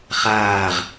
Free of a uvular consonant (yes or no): no